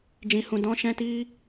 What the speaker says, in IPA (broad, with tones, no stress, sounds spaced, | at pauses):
d͡ʒ ĩ˧ h ũ˧ d ɔ̃˦ ʃ ɛ̃˦ t i˦